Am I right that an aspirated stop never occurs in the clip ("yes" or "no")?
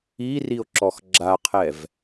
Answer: no